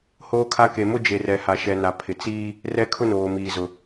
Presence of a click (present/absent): absent